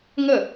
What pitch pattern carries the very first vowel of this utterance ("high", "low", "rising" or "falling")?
falling